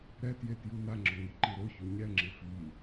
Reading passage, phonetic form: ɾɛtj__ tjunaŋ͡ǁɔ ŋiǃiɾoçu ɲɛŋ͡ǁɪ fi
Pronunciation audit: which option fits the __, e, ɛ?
e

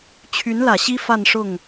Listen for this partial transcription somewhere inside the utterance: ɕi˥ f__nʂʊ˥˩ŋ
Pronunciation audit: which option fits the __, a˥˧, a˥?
a˥˧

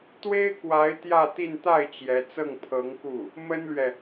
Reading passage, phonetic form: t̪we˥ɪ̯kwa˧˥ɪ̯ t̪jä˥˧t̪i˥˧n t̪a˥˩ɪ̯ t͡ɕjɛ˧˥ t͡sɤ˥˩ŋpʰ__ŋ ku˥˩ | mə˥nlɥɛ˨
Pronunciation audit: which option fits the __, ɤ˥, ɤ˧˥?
ɤ˧˥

